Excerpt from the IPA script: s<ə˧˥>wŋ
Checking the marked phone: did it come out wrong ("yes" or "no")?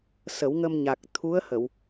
yes